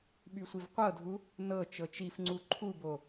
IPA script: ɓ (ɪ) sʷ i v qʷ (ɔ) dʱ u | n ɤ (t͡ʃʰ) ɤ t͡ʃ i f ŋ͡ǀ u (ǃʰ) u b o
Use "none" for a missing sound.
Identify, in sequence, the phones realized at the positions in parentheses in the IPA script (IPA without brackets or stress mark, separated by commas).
y, ɤ, t͡ʃ, ǃʰ